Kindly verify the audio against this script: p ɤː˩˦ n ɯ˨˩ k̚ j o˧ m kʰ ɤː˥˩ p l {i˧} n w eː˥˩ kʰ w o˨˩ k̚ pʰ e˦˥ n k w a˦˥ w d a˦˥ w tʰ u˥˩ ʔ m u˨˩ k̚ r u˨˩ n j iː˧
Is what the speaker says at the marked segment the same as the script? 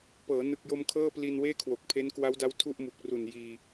yes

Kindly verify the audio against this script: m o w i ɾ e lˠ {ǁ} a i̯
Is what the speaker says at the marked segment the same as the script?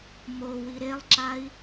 yes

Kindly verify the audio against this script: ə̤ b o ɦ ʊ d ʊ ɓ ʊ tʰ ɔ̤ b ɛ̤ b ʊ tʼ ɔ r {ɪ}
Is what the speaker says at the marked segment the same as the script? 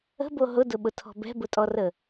no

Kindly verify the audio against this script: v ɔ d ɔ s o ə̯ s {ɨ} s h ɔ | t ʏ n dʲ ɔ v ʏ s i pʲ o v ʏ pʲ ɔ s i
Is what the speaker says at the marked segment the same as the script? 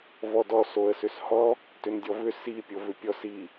no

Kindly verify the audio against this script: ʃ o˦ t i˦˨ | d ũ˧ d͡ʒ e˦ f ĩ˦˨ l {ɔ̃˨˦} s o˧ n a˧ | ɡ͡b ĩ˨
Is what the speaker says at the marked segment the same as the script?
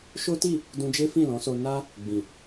yes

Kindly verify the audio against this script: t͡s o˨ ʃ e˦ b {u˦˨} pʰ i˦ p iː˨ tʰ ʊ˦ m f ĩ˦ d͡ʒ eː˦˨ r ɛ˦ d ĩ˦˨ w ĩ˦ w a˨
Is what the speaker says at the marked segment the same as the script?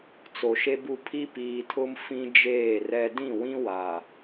yes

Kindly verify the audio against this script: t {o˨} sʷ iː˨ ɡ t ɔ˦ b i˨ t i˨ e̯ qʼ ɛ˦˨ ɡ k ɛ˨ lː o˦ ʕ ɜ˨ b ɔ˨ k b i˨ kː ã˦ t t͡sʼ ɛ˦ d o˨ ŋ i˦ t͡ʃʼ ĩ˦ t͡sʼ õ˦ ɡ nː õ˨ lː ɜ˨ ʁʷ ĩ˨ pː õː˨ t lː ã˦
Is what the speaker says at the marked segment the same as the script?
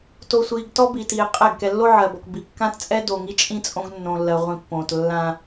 yes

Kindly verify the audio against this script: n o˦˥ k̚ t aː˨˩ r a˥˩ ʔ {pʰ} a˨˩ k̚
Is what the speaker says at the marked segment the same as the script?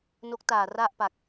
no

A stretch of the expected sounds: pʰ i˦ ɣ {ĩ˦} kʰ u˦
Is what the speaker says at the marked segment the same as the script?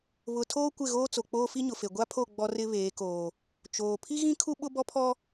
yes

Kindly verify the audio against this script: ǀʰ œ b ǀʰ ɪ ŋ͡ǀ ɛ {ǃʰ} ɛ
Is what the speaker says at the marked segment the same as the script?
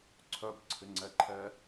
yes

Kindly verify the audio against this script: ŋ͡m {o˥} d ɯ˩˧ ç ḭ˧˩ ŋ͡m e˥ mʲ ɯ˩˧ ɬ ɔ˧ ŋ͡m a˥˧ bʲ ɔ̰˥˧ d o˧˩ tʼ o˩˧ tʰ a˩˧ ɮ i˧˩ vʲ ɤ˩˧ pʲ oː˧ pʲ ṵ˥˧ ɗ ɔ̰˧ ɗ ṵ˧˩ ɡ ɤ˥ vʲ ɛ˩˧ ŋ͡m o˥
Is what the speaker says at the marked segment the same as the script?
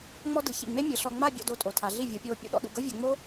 no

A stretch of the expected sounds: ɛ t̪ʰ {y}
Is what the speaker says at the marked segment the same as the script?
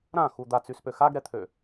no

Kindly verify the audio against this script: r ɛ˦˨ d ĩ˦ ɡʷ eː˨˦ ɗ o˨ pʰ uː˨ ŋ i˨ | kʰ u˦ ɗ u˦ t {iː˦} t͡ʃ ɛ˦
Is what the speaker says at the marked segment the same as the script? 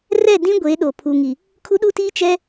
yes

